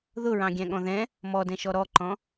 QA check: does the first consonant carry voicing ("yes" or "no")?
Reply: yes